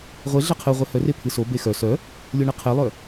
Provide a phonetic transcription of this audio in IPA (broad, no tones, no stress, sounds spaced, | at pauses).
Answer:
ʁʷ e ɮ ɛ qʰ ɨ ʁʷ e h œ r e pʰ ɨ s o b e x œ s œ | lʲ o ɳ ɨ qʰ e lˠ œ